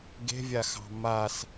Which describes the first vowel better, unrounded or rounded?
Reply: unrounded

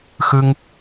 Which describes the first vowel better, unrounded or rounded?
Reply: unrounded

